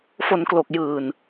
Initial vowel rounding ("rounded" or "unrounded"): rounded